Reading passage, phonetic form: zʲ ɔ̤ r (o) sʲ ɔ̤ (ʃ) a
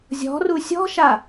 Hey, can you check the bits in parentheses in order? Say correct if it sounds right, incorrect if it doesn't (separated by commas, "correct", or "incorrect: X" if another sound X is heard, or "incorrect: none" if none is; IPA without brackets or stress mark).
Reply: incorrect: u, correct